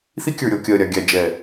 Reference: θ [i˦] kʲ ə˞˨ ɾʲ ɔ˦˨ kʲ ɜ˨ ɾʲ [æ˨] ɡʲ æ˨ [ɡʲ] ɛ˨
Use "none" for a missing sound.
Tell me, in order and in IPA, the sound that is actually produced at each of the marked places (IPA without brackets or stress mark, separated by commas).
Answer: i˦, a˨, d͡ʒ